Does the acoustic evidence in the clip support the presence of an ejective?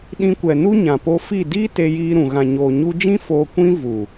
no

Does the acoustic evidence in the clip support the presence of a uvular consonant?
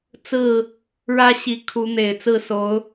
no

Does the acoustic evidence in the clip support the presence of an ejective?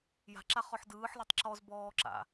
no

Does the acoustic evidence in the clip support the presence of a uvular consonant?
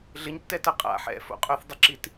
yes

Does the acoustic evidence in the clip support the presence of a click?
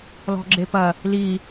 yes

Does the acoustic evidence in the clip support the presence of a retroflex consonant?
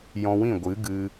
no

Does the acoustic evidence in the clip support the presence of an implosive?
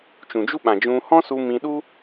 yes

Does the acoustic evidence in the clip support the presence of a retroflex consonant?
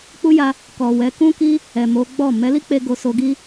no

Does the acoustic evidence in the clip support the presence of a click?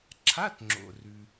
yes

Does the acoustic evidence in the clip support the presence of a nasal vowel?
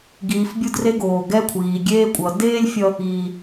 no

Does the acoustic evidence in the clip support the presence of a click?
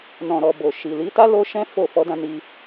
no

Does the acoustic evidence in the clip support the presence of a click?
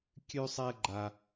yes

